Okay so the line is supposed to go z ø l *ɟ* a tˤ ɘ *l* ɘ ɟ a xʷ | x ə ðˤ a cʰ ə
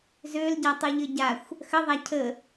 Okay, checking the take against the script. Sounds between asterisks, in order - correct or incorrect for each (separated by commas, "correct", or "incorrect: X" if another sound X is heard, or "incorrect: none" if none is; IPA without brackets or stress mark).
correct, incorrect: ʎ